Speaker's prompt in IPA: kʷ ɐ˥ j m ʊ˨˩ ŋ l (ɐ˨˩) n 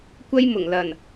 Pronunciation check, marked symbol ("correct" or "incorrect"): correct